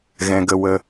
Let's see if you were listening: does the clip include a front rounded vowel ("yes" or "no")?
no